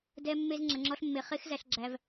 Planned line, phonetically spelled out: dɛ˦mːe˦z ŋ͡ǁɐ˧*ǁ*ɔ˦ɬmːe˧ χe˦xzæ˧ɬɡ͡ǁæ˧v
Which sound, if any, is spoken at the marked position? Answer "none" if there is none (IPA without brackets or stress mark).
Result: ŋ͡ǁ